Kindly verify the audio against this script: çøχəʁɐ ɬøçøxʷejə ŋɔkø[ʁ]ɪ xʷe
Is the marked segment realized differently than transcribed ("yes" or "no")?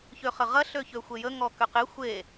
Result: yes